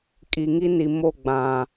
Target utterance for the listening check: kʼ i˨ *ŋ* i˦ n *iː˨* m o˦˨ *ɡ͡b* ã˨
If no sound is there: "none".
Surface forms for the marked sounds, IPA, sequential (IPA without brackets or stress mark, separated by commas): ŋ, i˨, ɡ͡b